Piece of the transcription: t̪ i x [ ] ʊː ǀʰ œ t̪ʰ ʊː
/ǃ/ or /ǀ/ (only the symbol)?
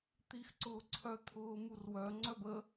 ǀ